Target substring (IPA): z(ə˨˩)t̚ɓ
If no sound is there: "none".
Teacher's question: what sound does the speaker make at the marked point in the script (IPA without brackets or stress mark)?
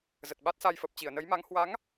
ə˨˩